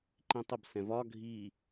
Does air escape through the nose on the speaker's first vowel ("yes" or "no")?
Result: yes